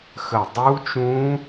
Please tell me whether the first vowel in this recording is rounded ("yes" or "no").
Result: no